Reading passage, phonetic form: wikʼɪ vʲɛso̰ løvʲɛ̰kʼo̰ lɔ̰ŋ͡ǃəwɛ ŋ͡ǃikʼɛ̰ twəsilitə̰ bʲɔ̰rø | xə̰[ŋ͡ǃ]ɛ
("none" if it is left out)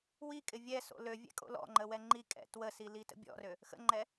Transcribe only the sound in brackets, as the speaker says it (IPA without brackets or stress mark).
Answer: ŋ͡ǃ